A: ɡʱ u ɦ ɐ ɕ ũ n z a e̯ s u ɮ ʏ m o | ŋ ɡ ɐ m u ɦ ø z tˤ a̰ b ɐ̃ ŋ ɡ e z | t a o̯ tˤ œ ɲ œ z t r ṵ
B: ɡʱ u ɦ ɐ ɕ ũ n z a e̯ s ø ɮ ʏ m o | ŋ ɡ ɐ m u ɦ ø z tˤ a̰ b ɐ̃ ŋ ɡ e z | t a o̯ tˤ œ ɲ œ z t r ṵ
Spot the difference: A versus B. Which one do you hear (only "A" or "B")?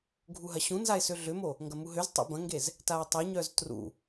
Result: B